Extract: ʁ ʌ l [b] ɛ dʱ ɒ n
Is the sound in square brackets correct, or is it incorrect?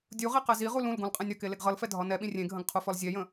incorrect